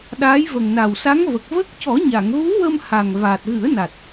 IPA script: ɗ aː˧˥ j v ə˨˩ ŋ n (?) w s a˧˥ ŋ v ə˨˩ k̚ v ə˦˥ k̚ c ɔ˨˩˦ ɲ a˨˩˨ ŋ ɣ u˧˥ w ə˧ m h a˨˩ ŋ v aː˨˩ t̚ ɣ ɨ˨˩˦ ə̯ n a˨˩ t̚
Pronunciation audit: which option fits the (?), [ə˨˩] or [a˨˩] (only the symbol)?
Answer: a˨˩